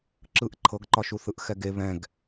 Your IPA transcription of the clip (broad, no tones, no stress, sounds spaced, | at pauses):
ǁ ɯ ʔ ǃʰ ɤ ɡ ǃ ɒ ʃ u θ ɯ ʔ x ɛ ɡ e β ɛ̃ ɡ